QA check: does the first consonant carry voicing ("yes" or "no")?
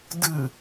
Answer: yes